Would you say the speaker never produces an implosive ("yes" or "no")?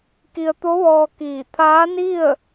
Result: yes